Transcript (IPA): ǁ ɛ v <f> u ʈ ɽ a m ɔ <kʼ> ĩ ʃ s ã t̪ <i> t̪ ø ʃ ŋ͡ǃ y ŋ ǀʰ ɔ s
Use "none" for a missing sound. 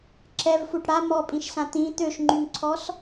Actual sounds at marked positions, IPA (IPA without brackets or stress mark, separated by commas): f, pʼ, ĩ